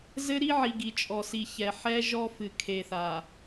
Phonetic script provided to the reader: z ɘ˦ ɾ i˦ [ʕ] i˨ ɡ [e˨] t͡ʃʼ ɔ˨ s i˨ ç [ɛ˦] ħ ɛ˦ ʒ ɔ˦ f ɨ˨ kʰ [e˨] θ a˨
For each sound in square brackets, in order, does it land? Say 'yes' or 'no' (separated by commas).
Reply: yes, no, no, yes